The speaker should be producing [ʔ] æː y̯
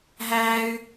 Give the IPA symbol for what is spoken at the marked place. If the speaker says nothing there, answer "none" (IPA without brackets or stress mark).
ɦ